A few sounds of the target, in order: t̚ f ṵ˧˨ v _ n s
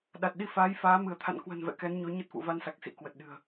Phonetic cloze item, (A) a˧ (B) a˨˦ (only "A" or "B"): A